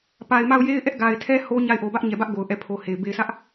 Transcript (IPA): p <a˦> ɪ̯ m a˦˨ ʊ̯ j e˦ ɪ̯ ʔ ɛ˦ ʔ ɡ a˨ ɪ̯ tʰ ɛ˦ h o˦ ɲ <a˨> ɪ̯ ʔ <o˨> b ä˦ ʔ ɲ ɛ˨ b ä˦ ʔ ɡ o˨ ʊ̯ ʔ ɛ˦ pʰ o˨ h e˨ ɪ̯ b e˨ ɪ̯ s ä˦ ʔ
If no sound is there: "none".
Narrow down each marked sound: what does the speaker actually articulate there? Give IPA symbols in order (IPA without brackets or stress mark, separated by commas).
a˨, a˦˨, o˨